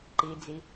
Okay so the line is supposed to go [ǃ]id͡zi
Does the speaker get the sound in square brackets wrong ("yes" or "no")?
no